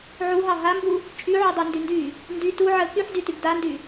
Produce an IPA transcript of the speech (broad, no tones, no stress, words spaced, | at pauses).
ʕuɦɑ ɦambu | t͡ʃʼyʕu dˤyndyndy | ndy tu ʕə kyħdytyb dandy